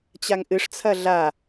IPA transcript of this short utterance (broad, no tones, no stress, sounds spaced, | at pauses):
t͡ɕ a ŋ ʔ ɨ ʂ t͡sʰ ɐ ɮ a